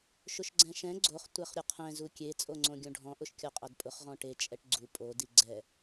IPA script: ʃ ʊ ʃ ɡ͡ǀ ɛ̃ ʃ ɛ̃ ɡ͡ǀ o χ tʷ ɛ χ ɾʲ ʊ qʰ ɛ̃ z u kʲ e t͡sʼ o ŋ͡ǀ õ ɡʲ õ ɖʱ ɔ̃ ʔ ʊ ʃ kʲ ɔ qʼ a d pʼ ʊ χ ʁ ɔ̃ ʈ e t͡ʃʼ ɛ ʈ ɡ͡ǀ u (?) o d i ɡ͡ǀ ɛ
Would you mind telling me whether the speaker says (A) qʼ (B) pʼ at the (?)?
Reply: B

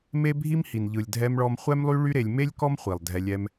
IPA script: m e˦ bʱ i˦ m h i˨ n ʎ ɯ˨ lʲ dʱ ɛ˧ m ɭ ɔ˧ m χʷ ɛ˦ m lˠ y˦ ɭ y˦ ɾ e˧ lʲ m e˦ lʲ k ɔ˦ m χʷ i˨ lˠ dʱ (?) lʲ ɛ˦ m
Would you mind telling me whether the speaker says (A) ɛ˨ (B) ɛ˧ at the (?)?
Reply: B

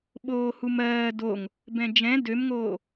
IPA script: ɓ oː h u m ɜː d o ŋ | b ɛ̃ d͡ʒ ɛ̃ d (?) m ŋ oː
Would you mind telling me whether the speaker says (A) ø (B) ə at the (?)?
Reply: A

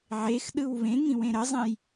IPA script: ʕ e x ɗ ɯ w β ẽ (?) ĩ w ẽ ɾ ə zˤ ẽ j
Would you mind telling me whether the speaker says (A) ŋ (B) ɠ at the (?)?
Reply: A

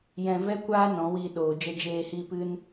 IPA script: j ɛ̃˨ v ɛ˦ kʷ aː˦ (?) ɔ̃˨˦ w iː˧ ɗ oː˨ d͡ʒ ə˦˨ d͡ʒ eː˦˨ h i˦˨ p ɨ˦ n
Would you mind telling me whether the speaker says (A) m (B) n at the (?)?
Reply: B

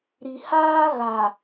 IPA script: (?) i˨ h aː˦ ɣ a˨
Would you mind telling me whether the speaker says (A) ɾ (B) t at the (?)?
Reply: A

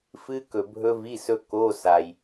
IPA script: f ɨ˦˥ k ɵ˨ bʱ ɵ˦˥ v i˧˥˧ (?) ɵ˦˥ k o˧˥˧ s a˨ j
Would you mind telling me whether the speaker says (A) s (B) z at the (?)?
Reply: A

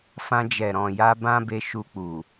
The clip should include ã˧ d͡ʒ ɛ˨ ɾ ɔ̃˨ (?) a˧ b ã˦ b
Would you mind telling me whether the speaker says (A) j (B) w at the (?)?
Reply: A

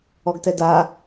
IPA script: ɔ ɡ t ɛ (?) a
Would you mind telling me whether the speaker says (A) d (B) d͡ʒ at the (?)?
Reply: A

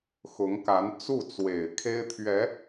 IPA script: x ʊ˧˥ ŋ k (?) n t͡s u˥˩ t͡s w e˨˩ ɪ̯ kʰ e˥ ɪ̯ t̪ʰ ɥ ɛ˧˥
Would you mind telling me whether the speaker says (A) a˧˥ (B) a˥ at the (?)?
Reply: A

